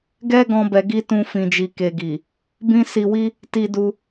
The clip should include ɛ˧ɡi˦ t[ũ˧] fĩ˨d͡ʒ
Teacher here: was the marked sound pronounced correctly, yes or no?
yes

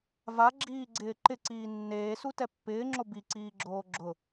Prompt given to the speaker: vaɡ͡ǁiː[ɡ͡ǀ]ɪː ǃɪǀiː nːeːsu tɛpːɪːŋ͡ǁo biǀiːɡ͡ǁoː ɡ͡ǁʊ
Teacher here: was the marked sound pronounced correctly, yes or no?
yes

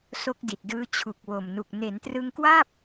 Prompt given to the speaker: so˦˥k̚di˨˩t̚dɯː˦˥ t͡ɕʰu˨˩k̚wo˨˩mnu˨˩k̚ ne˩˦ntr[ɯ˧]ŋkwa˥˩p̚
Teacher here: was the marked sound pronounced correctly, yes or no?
yes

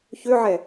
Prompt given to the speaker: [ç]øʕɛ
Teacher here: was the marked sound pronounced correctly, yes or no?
yes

